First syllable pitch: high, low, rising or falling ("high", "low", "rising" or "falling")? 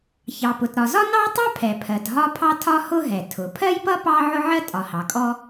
low